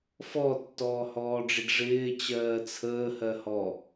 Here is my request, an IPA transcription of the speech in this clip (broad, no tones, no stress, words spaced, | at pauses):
fɔtːɔːhɔːɖ͡ʐɪɖ ʐɪː t͡ɕɜːt͡sʰəː hɜhɔ